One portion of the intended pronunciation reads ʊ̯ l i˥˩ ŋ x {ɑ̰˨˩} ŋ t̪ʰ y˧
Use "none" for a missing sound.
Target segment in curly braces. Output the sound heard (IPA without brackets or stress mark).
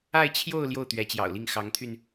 ɑ˧˥